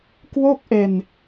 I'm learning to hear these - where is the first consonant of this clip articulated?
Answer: velum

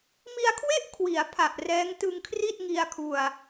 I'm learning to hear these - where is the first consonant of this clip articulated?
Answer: lips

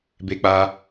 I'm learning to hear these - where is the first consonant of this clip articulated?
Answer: lips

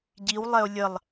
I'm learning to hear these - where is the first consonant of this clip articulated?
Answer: palate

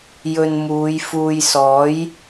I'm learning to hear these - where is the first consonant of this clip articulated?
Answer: palate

